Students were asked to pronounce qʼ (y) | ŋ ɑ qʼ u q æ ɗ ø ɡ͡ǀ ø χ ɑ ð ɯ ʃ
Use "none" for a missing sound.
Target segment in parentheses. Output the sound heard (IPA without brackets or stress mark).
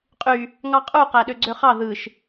y